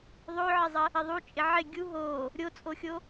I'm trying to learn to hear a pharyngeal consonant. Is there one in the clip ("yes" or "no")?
yes